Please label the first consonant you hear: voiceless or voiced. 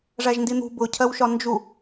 voiced